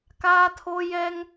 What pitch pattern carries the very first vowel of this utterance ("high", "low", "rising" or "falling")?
high